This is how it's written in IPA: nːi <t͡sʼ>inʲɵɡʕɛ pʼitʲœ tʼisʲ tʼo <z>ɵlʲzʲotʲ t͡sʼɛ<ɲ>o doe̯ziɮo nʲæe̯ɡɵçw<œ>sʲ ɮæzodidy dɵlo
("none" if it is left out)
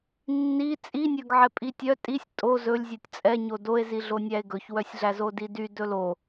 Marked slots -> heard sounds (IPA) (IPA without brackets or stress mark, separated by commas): t͡sʼ, z, ɲ, œ